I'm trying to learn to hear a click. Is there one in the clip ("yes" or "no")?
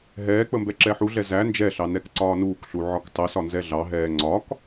yes